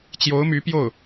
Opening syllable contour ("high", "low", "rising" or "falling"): rising